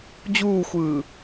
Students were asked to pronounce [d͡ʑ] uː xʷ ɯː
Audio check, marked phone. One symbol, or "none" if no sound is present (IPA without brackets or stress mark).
d͡ʑ